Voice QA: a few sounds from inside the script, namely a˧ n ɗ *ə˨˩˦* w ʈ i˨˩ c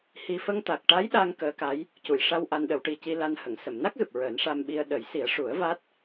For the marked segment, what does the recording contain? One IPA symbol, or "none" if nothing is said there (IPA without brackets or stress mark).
ə˨˩˦